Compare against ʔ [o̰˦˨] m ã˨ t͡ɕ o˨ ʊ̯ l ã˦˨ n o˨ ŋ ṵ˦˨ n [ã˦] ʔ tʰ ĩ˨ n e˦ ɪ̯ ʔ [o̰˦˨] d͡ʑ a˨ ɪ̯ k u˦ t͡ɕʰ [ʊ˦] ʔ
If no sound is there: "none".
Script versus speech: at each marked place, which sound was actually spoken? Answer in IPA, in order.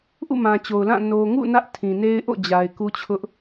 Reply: ṵ˦˨, ä˦, o̰˦˨, ʊ˦

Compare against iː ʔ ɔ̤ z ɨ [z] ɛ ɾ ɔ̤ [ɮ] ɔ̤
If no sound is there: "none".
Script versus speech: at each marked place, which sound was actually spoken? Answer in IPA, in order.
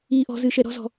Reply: ʃ, z

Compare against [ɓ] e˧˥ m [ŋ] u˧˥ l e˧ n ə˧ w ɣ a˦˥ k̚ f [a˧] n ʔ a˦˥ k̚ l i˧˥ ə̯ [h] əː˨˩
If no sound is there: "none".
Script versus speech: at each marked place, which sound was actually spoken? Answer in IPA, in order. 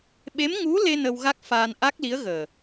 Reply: ɓ, ŋ, aː˧, ɣ

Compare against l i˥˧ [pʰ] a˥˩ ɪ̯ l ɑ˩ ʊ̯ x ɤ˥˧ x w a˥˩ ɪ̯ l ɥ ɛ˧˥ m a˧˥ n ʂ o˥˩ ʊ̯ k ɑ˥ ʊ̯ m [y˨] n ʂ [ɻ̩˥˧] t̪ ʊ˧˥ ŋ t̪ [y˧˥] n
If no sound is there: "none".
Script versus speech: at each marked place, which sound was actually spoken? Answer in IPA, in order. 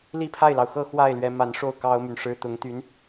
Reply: pʰ, y˨, ɻ̩˥, y˧˥

